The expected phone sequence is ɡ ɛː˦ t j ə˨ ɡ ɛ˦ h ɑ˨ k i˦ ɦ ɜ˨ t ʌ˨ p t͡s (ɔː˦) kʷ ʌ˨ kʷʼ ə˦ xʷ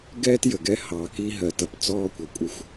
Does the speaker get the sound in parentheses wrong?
no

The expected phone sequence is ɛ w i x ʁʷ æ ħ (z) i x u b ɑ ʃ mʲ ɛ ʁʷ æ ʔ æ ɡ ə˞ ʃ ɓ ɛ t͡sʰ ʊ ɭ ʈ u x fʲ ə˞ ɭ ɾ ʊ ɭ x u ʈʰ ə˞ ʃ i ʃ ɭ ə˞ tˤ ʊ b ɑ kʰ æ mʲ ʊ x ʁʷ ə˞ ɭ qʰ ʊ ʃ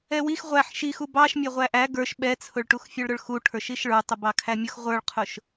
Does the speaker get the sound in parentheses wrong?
yes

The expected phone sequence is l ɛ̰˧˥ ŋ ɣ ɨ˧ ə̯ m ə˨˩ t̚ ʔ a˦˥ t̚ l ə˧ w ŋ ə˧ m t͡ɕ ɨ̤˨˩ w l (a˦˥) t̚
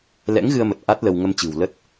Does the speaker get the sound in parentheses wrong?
yes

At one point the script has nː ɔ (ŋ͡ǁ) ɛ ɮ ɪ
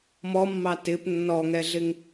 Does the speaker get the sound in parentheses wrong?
yes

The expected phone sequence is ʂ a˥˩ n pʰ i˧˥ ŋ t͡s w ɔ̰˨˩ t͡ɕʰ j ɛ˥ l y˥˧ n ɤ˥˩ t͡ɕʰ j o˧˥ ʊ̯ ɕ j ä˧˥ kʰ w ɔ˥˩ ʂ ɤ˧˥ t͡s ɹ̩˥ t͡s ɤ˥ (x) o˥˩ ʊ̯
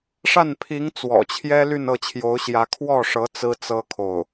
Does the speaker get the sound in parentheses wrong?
yes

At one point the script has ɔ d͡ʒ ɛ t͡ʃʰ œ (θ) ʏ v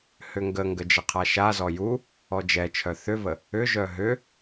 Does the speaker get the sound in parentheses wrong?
no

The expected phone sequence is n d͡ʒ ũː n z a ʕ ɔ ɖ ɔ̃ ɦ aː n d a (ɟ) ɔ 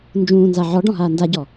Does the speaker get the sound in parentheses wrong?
no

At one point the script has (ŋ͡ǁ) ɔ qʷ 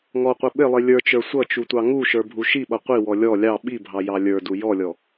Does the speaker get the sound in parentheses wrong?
yes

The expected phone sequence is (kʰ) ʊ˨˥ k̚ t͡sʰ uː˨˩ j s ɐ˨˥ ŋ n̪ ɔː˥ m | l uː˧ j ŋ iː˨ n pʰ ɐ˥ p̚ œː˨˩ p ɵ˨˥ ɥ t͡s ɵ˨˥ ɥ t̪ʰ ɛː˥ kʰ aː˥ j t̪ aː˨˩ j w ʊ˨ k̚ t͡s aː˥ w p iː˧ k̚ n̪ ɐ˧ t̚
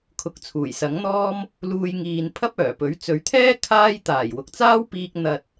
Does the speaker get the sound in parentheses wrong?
no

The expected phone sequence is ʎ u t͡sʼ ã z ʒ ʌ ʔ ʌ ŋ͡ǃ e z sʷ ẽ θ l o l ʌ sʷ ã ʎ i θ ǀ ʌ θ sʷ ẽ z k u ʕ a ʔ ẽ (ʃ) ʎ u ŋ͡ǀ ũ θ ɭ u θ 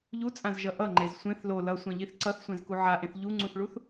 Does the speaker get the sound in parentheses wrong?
yes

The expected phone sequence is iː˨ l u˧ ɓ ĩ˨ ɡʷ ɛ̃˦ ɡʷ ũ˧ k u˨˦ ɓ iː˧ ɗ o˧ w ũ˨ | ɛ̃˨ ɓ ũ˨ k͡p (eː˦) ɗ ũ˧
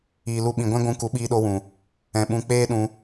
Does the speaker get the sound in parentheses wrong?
no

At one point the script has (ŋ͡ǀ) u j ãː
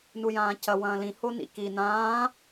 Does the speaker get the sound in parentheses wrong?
yes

